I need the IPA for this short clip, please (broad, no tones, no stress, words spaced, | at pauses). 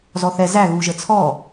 zɔθɛ zæ ɣuʒət͡sʰɔ